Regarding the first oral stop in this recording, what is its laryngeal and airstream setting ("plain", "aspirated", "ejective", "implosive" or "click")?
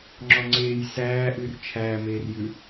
click